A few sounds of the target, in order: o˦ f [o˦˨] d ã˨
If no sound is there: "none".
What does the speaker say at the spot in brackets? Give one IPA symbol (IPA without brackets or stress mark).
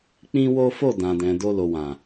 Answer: o˦˨